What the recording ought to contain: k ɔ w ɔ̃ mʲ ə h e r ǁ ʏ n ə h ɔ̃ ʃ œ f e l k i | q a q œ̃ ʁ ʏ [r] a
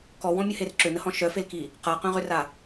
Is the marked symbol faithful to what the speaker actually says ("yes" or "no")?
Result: yes